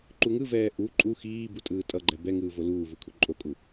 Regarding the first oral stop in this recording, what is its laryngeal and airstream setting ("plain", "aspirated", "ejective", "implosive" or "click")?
click